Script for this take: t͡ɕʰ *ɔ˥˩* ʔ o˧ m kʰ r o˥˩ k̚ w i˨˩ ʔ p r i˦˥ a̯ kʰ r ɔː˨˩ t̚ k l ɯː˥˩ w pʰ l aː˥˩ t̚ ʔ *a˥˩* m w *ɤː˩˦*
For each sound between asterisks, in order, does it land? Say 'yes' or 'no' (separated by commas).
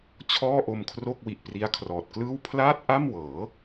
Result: no, yes, yes